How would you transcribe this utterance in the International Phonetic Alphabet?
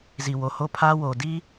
z i˨ w o˨ h o˦˨ pʰ a˦ w o˨ d i˦

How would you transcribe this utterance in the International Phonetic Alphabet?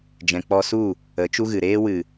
d͡ʒ ɛ̃˨ k͡p ɔ˧ s u˦˨ | ə˨˦ t͡ʃ u˦ ɣ ɨ˨ ɾ eː˧ w ɨ˨

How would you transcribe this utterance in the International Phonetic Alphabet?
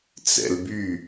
t͡s ɛ̰ l b y

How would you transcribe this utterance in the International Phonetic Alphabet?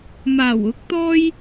m aː˨˩ w ʊ˨˥ k̚ t̪ ɔː˥ j

